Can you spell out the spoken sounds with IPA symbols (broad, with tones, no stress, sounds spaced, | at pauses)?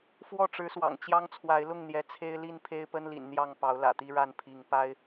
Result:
f w ɔ˥˨ ʈ͡ʂ ɻ̩˨˦ s w ɑ̰˨˩ ŋ t͡ɕ j ɑ˦ ŋ t͡sʰ w a˨˦ ɪ̯ l ʊ˥˨ ŋ n̪ j ɛ˨˦ t͡sʰ e˦ ɪ̯ l i˥˨ n pʰ e˦ ɪ̯ p ə˦ n l ḭ˨˩ n n̪ j ɑ˥˨ ŋ p ɑ˨˦ ʊ̯ l ä̰˨˩ t̪ i˦ ɻ a˥˨ n pʰ i˨˦ ŋ p a˦ ɪ̯